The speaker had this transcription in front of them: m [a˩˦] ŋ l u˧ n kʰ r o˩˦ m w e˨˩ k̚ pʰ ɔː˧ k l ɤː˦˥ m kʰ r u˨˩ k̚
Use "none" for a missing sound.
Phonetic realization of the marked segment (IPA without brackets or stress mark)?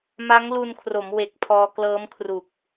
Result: a˦˥